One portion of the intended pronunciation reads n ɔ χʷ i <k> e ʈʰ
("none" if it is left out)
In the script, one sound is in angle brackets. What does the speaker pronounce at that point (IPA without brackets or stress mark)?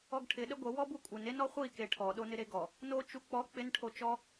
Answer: k